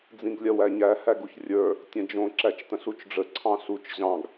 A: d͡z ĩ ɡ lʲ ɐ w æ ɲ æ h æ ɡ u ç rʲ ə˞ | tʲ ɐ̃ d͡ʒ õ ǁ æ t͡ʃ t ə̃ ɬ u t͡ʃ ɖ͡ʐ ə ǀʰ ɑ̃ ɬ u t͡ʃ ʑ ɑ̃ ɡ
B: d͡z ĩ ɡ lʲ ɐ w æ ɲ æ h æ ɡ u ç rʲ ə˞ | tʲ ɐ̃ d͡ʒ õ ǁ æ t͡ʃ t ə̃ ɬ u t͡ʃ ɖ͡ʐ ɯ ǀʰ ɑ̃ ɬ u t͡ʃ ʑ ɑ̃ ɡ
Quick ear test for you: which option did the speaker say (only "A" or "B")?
A